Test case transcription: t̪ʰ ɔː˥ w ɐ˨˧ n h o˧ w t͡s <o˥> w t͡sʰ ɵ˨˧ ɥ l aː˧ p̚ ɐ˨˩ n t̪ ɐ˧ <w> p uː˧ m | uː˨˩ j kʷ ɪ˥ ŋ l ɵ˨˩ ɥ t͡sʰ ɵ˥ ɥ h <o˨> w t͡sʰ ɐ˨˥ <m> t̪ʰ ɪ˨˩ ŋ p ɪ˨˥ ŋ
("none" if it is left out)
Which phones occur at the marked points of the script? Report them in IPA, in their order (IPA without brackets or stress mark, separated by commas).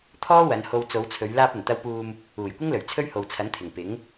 o˨˧, w, o˨, n